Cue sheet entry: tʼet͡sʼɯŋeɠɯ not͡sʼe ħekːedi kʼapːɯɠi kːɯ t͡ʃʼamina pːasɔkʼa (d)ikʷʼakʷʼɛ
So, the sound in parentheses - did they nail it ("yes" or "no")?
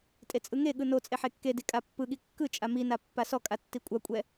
no